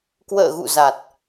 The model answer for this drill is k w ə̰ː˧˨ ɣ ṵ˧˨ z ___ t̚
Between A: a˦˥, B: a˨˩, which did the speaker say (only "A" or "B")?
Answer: B